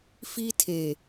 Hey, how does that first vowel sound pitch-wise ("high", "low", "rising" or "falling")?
high